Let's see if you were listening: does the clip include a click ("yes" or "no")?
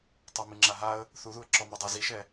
yes